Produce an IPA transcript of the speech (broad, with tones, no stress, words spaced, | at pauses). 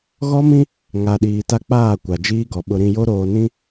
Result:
ɣɔ˦mĩ˦ | ŋa˨ɗiː˨ta˦ k͡paː˦˨kʷa˨d͡ʒiː˦ɡɔ˨ ɓʊ˨ɾĩ˨ jo˦ɾoː˨nĩ˦